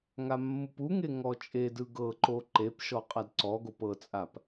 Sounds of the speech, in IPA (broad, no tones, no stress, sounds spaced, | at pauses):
ŋ a mː u p u ŋ e ŋ ɔ t͡ʃʼ e d ɯ ɡ ɤ ǃ o ǃ e p ʃ ɔ qʼ a d ǀ ɔ ɡ o p ɤ t͡sʼ a p